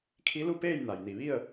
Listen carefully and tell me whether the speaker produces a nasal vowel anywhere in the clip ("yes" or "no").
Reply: no